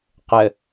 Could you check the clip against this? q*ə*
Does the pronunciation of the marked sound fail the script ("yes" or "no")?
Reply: no